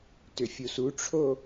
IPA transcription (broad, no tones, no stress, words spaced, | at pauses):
tʏfʲusuʈ͡ʂʰo